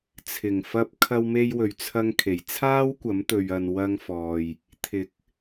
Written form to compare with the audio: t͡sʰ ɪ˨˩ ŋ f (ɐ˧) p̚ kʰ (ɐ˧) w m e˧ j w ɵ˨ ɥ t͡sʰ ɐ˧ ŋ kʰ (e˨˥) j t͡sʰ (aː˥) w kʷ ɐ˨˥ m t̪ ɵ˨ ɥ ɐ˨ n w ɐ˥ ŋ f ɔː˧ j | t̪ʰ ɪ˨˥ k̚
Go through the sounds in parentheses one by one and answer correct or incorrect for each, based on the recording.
correct, correct, incorrect: e˨˩, correct

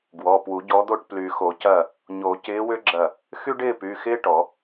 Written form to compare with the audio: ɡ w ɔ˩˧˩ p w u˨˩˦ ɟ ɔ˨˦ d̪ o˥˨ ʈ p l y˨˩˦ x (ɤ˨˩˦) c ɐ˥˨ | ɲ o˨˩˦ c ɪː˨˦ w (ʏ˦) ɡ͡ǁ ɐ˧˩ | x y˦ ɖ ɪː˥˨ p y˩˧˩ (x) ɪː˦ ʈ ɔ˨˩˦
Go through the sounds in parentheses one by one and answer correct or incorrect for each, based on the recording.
incorrect: o˨˩˦, correct, correct

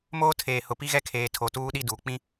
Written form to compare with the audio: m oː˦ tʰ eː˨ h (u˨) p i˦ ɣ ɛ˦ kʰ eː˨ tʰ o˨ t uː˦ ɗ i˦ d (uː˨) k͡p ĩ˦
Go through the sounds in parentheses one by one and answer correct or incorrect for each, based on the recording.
incorrect: ʊ˨, correct

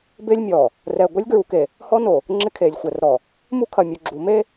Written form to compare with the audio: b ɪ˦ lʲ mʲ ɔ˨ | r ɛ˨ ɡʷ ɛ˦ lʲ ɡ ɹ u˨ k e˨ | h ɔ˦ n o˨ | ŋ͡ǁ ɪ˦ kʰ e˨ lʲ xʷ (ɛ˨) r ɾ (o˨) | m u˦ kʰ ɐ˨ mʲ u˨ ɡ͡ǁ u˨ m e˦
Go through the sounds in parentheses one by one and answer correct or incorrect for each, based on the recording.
correct, incorrect: ɔ˨

